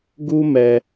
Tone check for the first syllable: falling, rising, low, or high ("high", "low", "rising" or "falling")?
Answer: high